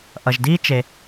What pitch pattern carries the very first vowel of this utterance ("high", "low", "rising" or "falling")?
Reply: low